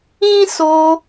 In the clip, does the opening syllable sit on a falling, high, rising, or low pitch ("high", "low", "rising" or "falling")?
high